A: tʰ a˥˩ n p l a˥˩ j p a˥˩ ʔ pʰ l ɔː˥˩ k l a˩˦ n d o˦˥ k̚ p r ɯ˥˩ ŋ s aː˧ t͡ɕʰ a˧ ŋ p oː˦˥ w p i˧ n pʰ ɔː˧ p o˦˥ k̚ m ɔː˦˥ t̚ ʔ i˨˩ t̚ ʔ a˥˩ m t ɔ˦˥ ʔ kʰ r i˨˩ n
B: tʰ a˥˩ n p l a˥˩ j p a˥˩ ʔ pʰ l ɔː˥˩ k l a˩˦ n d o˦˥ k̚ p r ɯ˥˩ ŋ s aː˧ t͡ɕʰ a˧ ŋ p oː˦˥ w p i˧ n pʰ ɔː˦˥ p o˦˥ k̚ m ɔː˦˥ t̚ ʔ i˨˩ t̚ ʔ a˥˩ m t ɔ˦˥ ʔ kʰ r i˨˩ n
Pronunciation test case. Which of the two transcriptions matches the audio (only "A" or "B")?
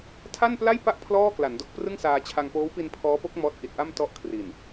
B